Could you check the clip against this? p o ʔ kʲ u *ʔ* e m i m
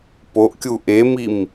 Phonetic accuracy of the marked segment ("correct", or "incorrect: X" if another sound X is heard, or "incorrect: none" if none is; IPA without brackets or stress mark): correct